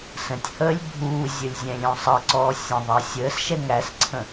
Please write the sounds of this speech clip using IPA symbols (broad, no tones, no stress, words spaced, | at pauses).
sə̃tʲhəːlʲ bʱuːzʲəlʲ zʲɛ̃lʲɔ̃sˤʌǀɔː sʲə̃ ðˤɜsʲəːsʃɛŋ æsǀʰə̃